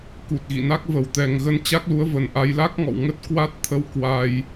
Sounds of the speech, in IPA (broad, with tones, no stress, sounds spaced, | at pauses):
k u˨˩ t̚ ɣ ḭ˧˨ n a˦˥ k̚ v ə˧˩ w t̪ ɛ˨˩ ŋ ɣ ə˧ n t͡ɕ a˦˥ k̚ l u˨˦ ə̯ v ə˨˩ n ʔ a˧ j l a˦˥ k̚ ŋ ɔ̰˧˨ w ŋ ə˦˥ t̚ k w a˦˥ t̚ t̪ʰ ə˧ w k w a˧ j